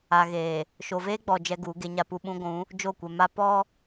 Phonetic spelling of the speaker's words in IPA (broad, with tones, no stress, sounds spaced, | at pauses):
a˨ ɣ eː˨ | ʃ o˨ v eː˦ ɡ͡b ɔ˨ d͡ʒ ɛ˦ ɡ uː˨˦ ɡ e˦ ɲ a˦ p u˦ ɓ ũ˦ ɡʷ ũ˨˦ | d͡ʒ o˦˨ kʷ ɛ˨ m a˦ p ɔ˦